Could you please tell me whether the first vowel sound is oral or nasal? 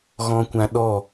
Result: nasal